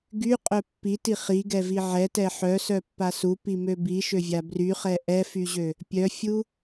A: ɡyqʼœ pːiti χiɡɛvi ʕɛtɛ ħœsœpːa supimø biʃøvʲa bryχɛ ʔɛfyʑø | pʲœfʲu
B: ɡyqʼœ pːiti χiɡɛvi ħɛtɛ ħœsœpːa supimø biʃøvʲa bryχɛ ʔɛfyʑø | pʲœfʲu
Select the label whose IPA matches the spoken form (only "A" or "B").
A